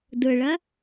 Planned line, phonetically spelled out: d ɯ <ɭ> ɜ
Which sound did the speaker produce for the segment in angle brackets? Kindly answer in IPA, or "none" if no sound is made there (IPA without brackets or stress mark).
ɭ